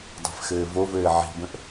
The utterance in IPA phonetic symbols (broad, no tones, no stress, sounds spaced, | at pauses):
dˤ ɛ̤ f x ɘː v o v ɘː ʕ i̤ b ə̃ ʔ